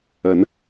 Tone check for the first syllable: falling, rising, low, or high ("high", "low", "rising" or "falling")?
rising